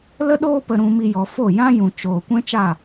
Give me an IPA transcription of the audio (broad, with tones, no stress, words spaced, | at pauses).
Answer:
lə˦ɗoː˦pə˧ ɾũ˧ mi˧ jɔ˨ fo˦˨ jã˦jũ˨ t͡ʃoː˨ kʷɛ̃˦t͡ʃa˦˨